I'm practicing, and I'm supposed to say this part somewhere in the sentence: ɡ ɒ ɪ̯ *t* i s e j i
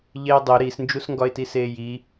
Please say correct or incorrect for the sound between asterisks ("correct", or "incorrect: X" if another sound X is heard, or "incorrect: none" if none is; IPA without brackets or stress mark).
correct